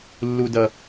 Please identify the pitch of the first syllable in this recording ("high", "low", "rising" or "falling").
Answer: low